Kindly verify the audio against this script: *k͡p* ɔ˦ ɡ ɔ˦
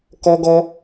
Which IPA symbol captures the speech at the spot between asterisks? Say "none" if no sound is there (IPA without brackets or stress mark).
k